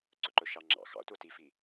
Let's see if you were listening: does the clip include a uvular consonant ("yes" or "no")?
no